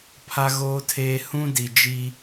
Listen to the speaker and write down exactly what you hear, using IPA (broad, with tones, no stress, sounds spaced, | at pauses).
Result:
pʰ a˦ ɣ oː˦ tʰ eː˦ h ũ˦ d i˨ d͡ʒ i˦